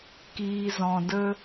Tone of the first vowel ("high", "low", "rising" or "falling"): low